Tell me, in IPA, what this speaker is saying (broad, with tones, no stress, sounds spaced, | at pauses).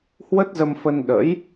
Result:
h w ə˦˥ t̚ z ə˧ m f ə˧ n ɗ ə̰˧˥ j